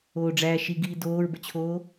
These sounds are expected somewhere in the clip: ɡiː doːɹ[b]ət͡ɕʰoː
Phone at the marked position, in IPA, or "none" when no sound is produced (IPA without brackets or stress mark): b